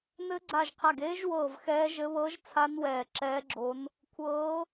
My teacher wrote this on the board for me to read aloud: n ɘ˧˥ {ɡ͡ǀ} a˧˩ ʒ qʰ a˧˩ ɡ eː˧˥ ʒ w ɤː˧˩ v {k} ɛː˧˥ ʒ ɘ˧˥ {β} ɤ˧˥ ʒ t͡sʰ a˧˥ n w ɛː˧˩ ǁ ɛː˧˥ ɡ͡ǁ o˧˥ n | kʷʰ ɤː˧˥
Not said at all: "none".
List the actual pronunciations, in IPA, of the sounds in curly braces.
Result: ɡ͡ǀ, x, β

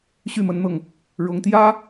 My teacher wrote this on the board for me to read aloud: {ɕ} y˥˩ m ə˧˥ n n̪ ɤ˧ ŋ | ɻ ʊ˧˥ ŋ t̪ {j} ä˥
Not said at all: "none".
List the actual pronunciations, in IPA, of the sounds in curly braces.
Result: ɕ, j

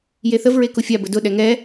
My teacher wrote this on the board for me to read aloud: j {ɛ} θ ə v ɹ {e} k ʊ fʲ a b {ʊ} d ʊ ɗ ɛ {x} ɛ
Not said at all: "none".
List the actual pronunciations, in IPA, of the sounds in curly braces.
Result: e, e, ə, ŋ

